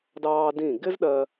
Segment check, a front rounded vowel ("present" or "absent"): absent